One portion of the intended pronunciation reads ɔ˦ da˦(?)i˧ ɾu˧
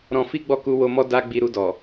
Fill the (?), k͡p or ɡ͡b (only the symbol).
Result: ɡ͡b